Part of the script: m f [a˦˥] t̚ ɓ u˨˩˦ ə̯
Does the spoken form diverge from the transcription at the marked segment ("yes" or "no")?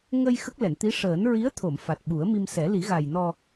yes